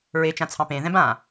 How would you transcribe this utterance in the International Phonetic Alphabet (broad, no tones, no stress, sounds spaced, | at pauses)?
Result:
ɹ e t͡ʃ ã t͡sʰ ɑ̃ p ẽ ð ɛ̃ b ã